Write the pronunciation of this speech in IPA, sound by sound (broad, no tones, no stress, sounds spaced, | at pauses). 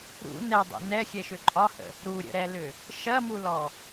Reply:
ɾ ṵ n ɛ dˤ ɛ̰ n ɛ xʲ ɛ ʃ ʏ ǃʼ ɒ h ə̰ | ɾ u ɾʲ ə̰ ɾ ɛ l ʏ | ʃ ɐ m u l ɔ